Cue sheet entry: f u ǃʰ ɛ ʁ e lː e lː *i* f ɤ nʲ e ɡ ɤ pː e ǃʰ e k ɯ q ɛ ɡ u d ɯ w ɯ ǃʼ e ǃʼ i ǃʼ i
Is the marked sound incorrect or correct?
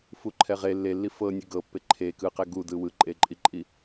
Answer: correct